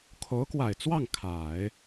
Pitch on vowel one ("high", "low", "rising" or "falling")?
rising